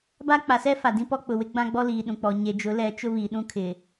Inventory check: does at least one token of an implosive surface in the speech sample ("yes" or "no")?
yes